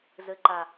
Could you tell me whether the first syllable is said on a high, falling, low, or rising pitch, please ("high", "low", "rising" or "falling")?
low